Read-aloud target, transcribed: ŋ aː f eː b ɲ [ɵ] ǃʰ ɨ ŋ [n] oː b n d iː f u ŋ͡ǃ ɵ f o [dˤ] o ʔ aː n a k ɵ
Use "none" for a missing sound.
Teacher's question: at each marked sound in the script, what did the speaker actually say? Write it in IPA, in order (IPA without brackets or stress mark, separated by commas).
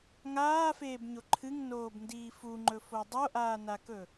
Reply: o, n, dˤ